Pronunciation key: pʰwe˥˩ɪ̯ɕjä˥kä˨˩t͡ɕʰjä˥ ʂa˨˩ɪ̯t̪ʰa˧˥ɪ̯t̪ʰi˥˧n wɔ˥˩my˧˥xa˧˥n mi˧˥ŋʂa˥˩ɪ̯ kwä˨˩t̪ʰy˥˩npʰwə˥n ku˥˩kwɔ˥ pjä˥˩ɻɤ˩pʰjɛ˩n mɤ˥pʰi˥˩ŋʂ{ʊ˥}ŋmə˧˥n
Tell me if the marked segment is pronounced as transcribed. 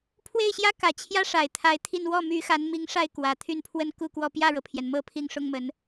yes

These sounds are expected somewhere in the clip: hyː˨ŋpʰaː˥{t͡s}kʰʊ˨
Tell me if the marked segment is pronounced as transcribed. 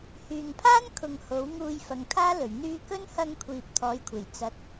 no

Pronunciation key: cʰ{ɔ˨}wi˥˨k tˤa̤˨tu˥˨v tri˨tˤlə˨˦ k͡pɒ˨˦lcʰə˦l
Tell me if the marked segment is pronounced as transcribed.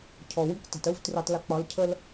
yes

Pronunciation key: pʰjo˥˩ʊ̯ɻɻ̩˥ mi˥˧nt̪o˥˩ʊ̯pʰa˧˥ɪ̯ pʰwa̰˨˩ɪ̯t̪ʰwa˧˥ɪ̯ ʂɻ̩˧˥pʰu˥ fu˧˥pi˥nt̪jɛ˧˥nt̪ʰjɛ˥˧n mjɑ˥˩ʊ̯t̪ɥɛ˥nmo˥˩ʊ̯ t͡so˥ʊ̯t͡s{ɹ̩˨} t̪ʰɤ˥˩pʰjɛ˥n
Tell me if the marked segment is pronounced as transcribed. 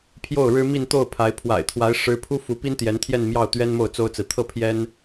yes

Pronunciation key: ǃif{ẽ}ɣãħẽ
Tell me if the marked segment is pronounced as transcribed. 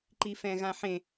no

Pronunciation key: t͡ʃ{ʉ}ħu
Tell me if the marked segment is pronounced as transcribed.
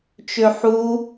no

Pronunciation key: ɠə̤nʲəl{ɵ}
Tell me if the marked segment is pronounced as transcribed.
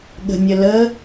no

